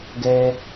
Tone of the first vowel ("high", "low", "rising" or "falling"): high